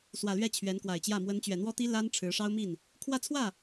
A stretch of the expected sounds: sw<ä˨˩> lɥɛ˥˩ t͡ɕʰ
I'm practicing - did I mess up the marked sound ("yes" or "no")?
no